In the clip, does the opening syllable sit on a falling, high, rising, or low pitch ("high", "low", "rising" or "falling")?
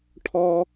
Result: high